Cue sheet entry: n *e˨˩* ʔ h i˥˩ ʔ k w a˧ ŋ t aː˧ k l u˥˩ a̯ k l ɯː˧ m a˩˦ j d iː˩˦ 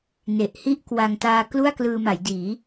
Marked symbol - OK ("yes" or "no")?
yes